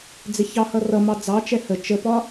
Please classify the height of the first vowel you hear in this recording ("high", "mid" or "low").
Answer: high